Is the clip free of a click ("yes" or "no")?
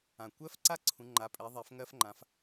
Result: no